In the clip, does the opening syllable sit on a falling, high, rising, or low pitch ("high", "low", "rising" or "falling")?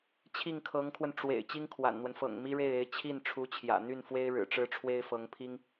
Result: falling